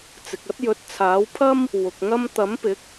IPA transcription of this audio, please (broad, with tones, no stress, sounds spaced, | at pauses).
t͡s ɪ˨ k̚ ɐ˥ t̚ j ɵ˨˥ t̚ t͡sʰ aː˨˥ w pʰ ɐ˥ m | w ʊ˨ k̚ ŋ ɐ˥ m t̪ ɐ˨˥ m p ɪ˨˥ k̚